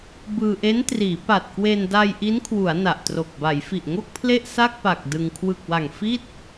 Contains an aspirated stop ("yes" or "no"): yes